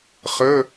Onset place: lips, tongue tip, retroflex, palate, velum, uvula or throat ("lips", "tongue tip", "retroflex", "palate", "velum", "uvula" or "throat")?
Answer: uvula